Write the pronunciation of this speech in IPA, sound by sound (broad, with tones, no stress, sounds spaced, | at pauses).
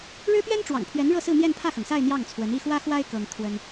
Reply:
ɻ ɻ̩˥ p ɥ ɛ˥ n ʈ͡ʂ w ɑ̰˨˩ ŋ pʰ ɥ ɛ˧˥ n ɻ ɤ˥˧ s ɹ̩˥˧ n̪ j ɛ˥˧ n pʰ ä˥˩ x ɤ˩ ŋ s a˥˧ ɪ̯ n̪ j ɑ˥˩ ŋ t͡sʰ w ə˧˥ n i˥˩ x w ä˥ x w a˥ ɪ̯ k ɤ˥ ŋ t̪ʰ w ə˥ n